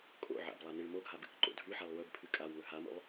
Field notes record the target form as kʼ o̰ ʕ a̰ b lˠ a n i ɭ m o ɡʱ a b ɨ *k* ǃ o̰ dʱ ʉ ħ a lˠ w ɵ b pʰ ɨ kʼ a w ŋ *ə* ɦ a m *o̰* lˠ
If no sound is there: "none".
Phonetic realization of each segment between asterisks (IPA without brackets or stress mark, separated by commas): k, ɵ, o̰